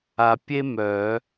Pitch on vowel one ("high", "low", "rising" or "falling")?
low